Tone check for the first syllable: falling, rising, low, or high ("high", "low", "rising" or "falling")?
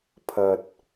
low